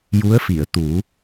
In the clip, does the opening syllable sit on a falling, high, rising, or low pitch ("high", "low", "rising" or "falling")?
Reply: rising